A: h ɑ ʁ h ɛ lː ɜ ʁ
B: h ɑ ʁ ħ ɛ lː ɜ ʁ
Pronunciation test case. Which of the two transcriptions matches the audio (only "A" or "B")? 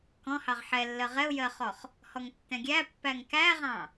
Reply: B